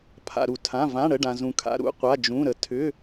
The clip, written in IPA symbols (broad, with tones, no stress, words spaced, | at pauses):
pʰa̰˩ɾu˩tʰã˩˧˩ vã˩˧˩ ɽə˩˧˩ ɖã˩zũ˩kʰa̰˩˧˩ ɾṵ˩˧˩ qʷa˩˧˩d͡ʒũ˩˧˩ɾə˩ tʰʏ˩˧˩